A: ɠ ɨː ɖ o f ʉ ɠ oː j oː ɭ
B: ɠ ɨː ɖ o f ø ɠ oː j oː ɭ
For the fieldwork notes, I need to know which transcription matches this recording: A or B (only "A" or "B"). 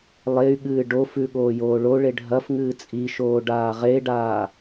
A